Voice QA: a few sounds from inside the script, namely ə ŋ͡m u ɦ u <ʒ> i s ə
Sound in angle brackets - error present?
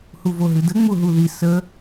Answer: yes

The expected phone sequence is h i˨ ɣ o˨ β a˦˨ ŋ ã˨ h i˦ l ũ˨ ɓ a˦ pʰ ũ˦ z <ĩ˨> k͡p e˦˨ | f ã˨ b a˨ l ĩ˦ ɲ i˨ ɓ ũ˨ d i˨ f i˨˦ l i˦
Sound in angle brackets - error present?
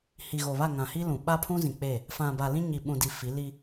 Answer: no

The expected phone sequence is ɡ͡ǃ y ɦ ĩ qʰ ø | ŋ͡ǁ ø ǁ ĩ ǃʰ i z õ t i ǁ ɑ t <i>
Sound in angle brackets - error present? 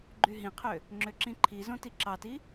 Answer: no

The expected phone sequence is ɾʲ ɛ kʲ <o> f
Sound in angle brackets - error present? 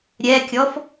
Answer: yes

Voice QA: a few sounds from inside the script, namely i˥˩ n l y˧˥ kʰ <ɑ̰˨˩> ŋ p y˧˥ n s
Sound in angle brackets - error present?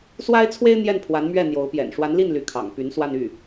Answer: no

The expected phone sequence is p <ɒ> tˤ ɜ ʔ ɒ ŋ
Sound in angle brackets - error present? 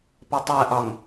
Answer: yes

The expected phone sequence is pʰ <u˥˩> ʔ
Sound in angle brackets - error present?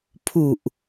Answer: yes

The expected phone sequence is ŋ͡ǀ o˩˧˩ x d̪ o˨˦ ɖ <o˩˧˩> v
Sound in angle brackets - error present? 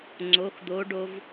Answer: yes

